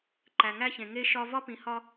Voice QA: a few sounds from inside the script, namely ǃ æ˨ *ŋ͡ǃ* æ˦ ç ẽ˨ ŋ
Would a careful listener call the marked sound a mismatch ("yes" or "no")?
yes